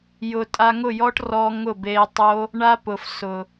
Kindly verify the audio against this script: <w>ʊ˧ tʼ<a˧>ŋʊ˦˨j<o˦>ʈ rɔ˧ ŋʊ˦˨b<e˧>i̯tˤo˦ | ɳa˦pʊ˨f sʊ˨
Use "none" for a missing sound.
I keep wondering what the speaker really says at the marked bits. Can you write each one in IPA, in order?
j, a˧, ɔ˦, e˧

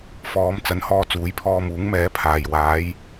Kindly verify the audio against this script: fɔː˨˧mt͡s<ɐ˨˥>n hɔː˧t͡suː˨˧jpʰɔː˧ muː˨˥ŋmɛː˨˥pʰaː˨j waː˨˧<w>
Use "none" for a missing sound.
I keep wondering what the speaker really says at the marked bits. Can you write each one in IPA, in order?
ɐ˨˥, j

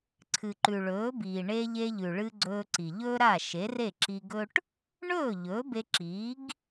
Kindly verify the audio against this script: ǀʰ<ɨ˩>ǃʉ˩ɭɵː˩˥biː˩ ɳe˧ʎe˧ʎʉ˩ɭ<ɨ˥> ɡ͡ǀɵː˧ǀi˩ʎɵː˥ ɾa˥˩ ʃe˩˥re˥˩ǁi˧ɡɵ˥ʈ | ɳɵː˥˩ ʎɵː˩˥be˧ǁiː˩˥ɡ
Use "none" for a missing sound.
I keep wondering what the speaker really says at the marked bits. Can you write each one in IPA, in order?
ɨ˩, ɨ˧

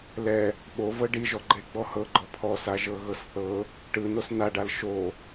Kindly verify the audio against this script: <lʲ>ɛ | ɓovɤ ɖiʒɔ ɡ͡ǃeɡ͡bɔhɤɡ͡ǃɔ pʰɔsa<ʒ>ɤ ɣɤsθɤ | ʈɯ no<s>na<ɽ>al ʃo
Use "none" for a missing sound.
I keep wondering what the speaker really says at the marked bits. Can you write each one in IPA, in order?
l, ʒ, s, ɖ

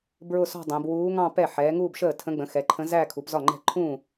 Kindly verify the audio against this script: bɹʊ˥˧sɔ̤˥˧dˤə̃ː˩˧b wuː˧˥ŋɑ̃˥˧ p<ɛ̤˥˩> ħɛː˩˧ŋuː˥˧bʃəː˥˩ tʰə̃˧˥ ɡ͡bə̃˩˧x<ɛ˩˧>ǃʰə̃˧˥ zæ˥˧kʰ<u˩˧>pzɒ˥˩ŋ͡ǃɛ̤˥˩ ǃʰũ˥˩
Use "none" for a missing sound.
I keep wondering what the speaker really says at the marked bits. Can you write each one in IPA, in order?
ɛ˥˩, ɛ˩˧, u˩˧

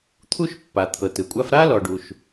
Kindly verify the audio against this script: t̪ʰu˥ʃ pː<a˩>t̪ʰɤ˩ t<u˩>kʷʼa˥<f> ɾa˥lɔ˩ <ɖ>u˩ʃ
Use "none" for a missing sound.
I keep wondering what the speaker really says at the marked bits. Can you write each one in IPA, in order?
a˩, ɯ˩, f, ɖ

